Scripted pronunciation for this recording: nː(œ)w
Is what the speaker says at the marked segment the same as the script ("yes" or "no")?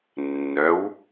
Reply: yes